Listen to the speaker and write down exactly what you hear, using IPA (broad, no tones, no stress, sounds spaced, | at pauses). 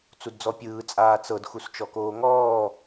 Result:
t͡s u d d͡z ɔ pʲ ɯː t͡sʼ aː t͡s ɤ d x u s t͡ʃ ɔ k oː ŋ ɔː